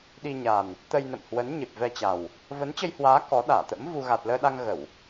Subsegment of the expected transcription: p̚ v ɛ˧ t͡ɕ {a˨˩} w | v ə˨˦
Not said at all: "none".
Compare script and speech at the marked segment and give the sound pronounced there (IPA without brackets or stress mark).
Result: a˨˩